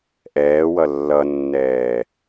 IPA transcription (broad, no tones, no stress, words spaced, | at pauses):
ʔɛːwʌ lːʌnːɛː